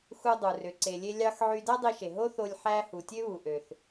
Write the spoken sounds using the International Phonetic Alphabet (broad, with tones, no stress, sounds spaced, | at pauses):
x u˧ dˤ u˩ r ø˩ ǀ e˩ lʲ e˧ lʲ ɑ˧ x ʕ y˧ d æ˥ dˤ i˧ ʃ e˩ ɦ o˥ θ o˧ lʲ ħ æ˧ h u˩ tʲ ø˥ β u˩ ʔ ø˩ θ